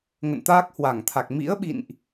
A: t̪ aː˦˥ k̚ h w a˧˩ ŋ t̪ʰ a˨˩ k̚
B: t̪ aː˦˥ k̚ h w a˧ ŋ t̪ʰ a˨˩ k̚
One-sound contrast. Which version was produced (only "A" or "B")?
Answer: A